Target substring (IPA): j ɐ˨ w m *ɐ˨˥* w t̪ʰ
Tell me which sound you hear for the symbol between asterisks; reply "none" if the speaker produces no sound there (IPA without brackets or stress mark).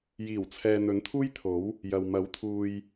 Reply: ɐ˨˥